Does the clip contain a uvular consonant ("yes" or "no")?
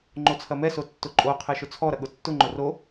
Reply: yes